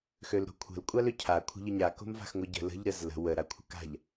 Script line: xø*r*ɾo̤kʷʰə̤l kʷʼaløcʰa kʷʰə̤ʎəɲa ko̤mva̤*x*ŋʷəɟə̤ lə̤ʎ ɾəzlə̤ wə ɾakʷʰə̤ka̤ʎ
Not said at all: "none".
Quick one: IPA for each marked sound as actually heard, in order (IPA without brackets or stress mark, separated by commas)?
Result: l, x